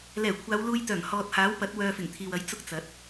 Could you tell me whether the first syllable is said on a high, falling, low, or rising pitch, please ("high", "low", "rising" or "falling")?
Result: low